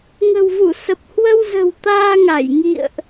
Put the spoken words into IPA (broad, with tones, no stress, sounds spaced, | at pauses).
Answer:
ŋ ə̤˨˩ w v u˧˩ s ə˨˩ p̚ h w ə˧ w z ə̤˨˩ w t̪ aː˧ ŋ a˧˩ j ŋ ḭ˧˨ ə̯ ʔ